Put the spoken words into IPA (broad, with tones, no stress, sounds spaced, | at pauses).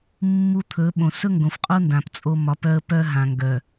mː u˦ t̪ʰ ɵ˨˦ ɓ õ˨ s ɵ˦ ŋ ɡ õ˨ f qʼ o˦ n d ã˨ p t͡sʼ o˦ m ɒ˨˦ p œ˦ ə̯ p œ˦ ɦ ã˨ ŋ ɡ œ˨